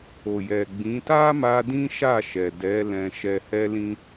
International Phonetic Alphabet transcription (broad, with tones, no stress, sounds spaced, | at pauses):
o˨ j ɛ˨ ɡ͡b ĩ˨˦ t a˦ m a˧ d ĩ˦ ʃ a˦˨ ʃ ɛ˨ d ɛ˨˦ l ɛ̃˧ ʃ ɛ˧ h ɛ˦ l ĩ˦